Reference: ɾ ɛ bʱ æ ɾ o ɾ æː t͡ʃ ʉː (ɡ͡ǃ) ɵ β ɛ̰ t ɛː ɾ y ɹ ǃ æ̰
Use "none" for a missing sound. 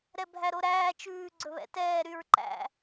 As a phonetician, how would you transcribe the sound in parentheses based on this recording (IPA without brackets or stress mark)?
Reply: ɡ͡ǀ